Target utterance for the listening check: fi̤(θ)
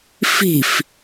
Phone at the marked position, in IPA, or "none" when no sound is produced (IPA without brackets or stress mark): f